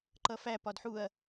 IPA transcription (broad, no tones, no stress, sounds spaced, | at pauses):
ǃ ʌ f æ p ɒ d ħ u ɐ̯